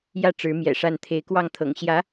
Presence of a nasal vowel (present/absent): absent